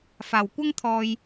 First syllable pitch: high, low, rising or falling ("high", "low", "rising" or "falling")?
low